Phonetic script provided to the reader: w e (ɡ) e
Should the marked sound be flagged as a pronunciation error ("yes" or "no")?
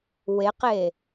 yes